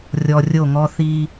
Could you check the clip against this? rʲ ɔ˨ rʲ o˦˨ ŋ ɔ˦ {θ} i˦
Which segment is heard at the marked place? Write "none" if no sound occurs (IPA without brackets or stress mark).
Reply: θ